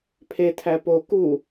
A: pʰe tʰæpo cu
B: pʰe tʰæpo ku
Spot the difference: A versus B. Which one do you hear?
B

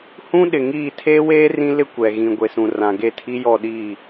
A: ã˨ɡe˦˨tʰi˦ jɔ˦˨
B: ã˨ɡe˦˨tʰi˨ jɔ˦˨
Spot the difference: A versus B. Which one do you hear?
A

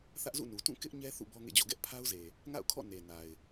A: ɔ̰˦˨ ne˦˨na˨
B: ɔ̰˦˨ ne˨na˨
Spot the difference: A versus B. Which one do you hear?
B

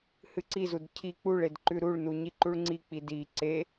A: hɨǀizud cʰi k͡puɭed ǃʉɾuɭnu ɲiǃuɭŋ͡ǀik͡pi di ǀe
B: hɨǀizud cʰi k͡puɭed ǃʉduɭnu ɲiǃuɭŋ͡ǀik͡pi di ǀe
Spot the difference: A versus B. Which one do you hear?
A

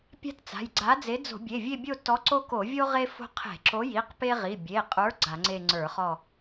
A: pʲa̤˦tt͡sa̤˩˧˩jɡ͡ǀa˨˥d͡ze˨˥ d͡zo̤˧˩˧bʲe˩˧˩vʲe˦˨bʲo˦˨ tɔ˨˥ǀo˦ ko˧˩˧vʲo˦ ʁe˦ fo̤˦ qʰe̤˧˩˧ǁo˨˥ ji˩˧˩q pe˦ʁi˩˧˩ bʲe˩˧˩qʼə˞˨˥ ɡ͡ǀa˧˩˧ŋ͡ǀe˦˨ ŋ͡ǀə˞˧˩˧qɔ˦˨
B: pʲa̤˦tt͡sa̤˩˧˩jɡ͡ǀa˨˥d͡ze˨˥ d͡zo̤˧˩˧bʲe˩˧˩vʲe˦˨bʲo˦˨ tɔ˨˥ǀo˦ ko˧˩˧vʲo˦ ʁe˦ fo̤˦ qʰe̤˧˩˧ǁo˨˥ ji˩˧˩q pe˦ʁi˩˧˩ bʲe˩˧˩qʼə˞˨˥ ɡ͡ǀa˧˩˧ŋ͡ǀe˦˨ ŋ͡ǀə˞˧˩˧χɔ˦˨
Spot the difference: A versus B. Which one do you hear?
B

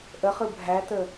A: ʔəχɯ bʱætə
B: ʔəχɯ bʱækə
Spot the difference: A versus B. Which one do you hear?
A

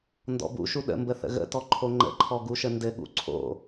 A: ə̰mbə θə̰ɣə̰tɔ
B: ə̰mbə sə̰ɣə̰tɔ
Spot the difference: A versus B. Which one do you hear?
A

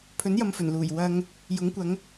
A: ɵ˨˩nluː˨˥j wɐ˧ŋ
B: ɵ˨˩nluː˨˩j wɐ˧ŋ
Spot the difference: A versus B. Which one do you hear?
B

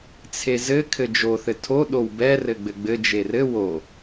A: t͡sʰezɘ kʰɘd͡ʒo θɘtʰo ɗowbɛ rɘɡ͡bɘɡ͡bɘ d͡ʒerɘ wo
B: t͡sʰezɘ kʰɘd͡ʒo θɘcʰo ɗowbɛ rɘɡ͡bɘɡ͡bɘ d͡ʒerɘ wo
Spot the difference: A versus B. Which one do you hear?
A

